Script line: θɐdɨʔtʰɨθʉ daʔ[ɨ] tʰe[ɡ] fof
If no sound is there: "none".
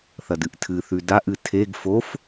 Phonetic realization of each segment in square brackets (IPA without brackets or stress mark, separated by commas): ɨ, ɡ